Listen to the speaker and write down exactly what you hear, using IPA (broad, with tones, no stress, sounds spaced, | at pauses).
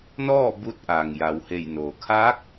n ɔː˥˨ b u˧ t̚ ʔ aː˩ ŋ j a˩˧ w h e˧˩ j n oː˩ kʰ aː˧˥ k̚